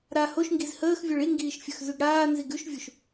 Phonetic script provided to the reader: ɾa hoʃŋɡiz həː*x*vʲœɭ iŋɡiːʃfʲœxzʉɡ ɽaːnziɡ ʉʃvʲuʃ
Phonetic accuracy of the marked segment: correct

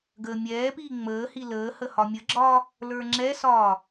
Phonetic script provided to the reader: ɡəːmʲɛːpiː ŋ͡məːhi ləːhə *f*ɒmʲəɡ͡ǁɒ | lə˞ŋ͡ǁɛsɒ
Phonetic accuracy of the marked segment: incorrect: h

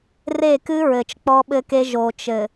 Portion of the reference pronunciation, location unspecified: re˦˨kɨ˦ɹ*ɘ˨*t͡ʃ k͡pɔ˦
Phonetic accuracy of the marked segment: correct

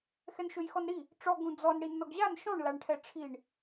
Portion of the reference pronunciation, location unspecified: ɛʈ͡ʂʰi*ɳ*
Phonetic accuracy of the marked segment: correct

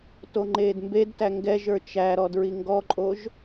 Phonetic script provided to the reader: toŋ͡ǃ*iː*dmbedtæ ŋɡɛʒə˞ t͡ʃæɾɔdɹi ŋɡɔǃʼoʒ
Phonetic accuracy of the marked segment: incorrect: eː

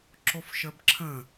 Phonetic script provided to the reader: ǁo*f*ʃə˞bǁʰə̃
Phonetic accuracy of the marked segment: correct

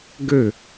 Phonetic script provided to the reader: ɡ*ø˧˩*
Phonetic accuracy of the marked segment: correct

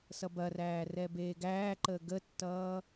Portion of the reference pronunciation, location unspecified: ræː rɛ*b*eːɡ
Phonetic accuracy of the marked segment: correct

